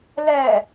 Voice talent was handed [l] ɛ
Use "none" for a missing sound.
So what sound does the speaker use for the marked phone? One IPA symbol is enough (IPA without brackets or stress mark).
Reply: l